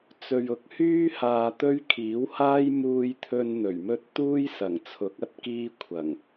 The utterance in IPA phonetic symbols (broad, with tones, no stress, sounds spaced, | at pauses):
t͡s ɵ˨ ɥ ʊ˨˥ k̚ h yː˥ h aː˧ t̪ ɵ˥ ɥ kʰ iː˨˥ w h aː˥ j m uː˧ j t̪ʰ ɵ˧ n n̪ ɵ˨˩ ɥ m ɵ˥ t̚ t̪ uː˥ j s ɐ˨˩ ŋ t͡sʰ ʊ˨˥ k̚ ɐ˨˥ t̚ k iː˥ kʷʰ ɐ˨˩ ŋ